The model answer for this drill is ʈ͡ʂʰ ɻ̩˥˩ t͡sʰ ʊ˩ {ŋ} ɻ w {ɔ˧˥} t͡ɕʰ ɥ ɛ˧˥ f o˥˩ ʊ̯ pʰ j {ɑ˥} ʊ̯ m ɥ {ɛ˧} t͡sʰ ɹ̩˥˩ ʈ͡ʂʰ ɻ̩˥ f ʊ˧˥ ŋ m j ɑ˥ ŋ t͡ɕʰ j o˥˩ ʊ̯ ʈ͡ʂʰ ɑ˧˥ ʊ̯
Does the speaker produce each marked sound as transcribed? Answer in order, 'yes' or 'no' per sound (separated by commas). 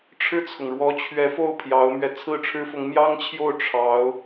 yes, yes, no, yes